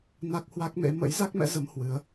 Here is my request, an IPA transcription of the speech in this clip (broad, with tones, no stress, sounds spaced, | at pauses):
n a˦˥ k̚ h w a˦˥ k̚ m ḛ˧˥ m ə̰˧˥ j z a˦˥ k̚ m ɛ̰˧˥ z ə˨˦ m h w ɨ˨˦ ə̯